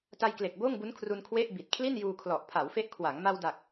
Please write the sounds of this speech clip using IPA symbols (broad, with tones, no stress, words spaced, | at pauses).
ta˧jkle˨˩k̚ boː˥˩ŋbu˦˥nkʰru˧n kʰwe˥˩ʔbi˨˩t̚ kʰli˥˩njuː˧kʰlɔ˨˩ʔ pʰa˩˦wfe˦˥ʔkʰwa˩˦ŋ ma˧w da˨˩k̚